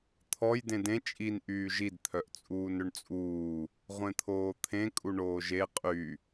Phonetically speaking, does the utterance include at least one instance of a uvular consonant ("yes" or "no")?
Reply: yes